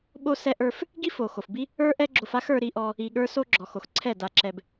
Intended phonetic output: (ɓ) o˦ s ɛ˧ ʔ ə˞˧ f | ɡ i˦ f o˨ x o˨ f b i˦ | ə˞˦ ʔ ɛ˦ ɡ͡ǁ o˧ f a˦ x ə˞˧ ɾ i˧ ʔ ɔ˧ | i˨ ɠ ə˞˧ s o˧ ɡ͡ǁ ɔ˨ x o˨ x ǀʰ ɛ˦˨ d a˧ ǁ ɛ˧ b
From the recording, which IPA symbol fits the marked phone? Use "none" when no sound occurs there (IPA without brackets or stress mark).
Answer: ɓ